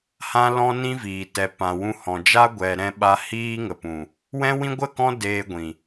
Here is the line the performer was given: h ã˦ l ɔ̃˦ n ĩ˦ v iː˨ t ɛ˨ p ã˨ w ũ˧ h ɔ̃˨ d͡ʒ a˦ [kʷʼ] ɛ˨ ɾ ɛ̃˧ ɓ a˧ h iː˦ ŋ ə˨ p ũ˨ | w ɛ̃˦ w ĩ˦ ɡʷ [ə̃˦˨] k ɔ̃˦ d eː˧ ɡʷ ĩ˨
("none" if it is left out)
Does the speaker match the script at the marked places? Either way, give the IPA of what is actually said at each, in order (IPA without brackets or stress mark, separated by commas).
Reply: ɡʷ, ə˦˨